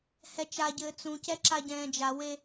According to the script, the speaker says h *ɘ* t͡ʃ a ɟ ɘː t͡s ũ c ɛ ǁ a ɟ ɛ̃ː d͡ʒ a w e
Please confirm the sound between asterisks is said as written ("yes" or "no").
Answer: no